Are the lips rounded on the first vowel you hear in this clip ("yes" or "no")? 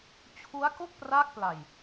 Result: yes